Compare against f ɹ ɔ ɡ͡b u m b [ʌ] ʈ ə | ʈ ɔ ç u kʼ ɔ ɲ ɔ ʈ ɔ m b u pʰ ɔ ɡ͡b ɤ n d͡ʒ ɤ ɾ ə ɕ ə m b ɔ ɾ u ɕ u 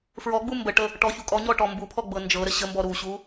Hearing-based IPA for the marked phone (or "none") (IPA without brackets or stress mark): ə